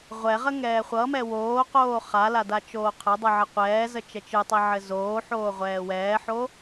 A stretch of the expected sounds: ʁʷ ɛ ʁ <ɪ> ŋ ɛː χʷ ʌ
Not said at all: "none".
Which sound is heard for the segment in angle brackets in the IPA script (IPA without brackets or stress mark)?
ə